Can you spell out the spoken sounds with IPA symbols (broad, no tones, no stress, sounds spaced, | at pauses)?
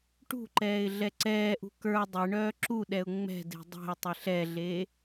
ʈ ṳ ǃ ɛː ɪ̯ ɮ ɛ ǀ ɛː ʔ ṳ k ə˞ dˤ e ɳ œː ǁ u ɗ ɛ ʊ̯ ŋ͡m ɛ̤ d e̤ dˤ ɛ̤ ʊ̯ tˤ e ɬ ɛ ɮ eː